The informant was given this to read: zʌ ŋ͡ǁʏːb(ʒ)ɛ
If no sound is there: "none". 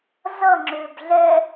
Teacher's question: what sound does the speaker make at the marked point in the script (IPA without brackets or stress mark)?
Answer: ɮ